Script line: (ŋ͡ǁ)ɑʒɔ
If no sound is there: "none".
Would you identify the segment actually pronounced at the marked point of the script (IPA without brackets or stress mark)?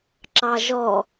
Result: ǁ